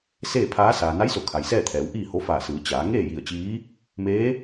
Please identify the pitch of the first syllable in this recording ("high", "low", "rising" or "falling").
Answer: falling